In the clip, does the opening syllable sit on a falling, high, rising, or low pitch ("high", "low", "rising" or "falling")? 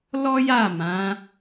high